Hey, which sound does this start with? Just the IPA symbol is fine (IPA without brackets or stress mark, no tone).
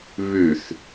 β